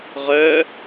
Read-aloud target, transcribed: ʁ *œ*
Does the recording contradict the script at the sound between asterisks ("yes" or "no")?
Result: no